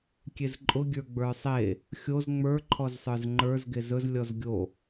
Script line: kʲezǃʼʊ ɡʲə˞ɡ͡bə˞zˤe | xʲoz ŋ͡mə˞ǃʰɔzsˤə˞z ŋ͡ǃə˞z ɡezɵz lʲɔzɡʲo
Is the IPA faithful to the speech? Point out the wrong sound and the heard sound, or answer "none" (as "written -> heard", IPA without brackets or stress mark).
zˤ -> sˤ